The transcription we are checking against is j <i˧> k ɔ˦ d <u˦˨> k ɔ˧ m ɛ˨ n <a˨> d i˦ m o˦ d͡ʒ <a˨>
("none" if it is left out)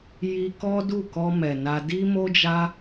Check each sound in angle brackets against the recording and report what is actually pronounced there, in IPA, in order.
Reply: i˧, u˦˨, a˧, a˦

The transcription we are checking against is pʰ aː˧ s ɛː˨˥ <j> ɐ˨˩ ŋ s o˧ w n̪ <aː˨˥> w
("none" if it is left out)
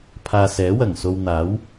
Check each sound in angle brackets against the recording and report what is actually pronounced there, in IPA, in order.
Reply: w, aː˨˥

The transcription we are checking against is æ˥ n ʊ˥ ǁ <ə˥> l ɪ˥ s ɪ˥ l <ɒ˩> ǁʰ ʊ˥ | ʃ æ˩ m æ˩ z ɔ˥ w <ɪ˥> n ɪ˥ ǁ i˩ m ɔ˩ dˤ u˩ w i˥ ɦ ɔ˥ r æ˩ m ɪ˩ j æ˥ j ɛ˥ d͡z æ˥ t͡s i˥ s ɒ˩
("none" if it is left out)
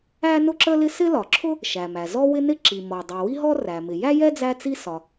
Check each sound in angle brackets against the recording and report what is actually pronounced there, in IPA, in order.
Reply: ə˥, ɒ˩, ɪ˥

